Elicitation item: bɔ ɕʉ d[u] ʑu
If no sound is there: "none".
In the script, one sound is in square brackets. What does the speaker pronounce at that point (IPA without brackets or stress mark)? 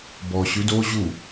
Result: o